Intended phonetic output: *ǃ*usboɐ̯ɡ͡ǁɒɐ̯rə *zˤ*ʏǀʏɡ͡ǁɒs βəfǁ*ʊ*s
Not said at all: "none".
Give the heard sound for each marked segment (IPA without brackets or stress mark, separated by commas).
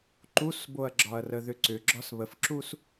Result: ǃ, ð, u